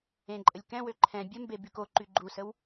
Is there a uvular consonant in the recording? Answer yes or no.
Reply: no